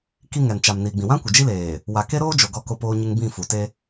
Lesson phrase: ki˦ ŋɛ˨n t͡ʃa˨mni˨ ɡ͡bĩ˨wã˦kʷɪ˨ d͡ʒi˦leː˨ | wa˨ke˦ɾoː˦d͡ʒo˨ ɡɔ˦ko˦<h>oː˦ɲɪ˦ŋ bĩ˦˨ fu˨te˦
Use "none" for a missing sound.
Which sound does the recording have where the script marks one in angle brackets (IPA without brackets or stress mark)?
p